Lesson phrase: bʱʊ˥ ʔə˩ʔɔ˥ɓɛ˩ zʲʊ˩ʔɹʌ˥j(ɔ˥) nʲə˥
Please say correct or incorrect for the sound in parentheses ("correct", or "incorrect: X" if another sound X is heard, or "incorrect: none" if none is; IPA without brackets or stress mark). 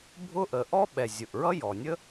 incorrect: ɔ˩